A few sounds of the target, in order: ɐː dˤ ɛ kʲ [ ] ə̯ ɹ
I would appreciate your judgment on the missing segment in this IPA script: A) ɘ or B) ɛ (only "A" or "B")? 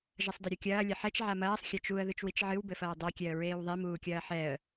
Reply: B